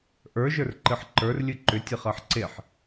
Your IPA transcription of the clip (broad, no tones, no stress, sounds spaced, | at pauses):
ʔ ə˞ ʒ ə˞ r ǃ ɨ ħ ǃ ə˞ r lʲ ɨ ǃ ʏ tʲ ɨ χ ɜ ħ ǀ e ħ